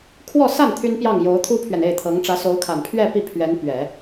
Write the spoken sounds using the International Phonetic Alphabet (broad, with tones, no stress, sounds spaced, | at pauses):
kʰ w ɔ˥˧ s a˥˩ n t̪ʰ y˥ n p j ɑ˥˩ ŋ j o˧˥ ʊ̯ t̪ʰ u˥ pʰ ɥ ɛ˨ n e˥˩ ɪ̯ t̪ʰ ɤ˧˥ ŋ ʈ͡ʂ ä˧˥ s o˧˥ ʊ̯ kʰ a˨˩ n pʰ ɥ ɛ˥˧ p i˥˩ pʰ ɥ ɛ˧˥ n p ɥ ɛ˨˩˦